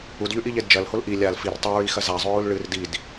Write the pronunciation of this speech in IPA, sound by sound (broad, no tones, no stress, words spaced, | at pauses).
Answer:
udʎʉʔiʎed d͡ʒɐlhol ʔi lʲal fir tˤɵɹixɐ zazˤʉɹul ɭɨr did